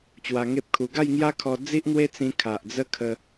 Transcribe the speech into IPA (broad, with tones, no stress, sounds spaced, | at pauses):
t͡ɕ w a˧ ŋ e˦ p̚ kʰ u˧ ɡ a˥˧ j ŋ j a˦ kʰ ɔ˧ d͡z i˦ ʔ n̪ w e˦ t͡s ĩ˧ kʰ a˨ ʔ d͡z ə˦ kʰ ə˧